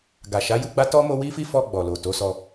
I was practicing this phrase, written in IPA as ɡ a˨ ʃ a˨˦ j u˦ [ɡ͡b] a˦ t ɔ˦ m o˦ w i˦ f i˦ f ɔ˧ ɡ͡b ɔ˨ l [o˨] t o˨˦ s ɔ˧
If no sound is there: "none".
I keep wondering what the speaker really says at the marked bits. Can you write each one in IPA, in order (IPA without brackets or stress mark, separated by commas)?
ɡ͡b, o˨